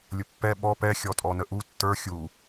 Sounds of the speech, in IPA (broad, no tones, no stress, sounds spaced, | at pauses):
lʲ ʊ pː ɛ ɓ ɔ p ɛ xʲ ɔ tʼ ɔ n ə ʔ u tː ə˞ xʲ u